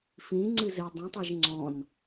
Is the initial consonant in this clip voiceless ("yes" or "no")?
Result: yes